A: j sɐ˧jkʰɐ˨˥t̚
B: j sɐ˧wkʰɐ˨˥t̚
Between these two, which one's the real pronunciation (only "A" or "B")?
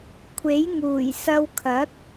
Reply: B